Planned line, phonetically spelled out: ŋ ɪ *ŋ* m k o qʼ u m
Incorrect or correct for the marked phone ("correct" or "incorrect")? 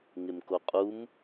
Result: incorrect